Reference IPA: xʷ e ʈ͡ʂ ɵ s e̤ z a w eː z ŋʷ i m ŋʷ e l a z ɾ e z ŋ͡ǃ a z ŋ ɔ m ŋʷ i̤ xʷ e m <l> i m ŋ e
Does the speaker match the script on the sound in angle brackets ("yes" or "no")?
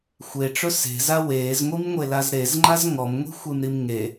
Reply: no